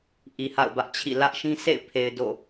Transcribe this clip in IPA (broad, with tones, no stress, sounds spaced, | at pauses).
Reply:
ʔ i˨ h a̰˦˨ ʊ̯ b ä˦ ʔ t͡ɕʰ ḭ˦˨ l ä˦ ʔ ʃ ĩ˦ sʰ ḛ˦˨ ɪ̯ pʰ e˨ ɪ̯ d o̰˦˨